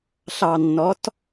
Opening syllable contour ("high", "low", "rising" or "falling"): low